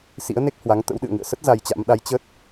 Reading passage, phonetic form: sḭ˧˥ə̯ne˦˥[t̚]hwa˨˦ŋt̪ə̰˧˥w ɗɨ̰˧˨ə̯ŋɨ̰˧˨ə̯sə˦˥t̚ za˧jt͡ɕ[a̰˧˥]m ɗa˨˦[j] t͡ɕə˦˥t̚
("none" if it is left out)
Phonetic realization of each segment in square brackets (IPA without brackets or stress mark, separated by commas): k̚, a̰˧˥, j